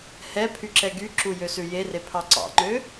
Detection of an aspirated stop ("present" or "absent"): present